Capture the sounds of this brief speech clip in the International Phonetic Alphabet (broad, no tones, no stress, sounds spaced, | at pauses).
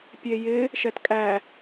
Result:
pʲ e j ɪ | ʃ ɛ t kʼ æ